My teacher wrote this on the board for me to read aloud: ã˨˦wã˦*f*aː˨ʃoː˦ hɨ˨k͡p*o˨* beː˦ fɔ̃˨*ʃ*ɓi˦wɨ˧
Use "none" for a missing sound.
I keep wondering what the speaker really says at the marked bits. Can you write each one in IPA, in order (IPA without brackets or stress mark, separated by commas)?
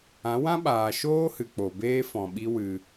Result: ɓ, o˨, none